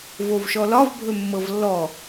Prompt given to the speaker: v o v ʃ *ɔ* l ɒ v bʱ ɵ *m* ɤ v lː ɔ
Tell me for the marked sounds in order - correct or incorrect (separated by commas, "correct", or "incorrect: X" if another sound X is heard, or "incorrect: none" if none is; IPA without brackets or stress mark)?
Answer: correct, incorrect: mː